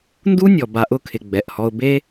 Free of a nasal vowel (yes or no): yes